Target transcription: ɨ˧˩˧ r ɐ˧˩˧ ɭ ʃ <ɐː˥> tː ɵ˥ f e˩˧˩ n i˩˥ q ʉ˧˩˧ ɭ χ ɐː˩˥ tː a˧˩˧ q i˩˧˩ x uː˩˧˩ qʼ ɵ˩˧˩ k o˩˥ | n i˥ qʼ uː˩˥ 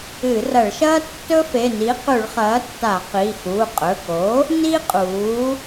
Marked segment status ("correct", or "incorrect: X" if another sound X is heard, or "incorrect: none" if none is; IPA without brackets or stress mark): correct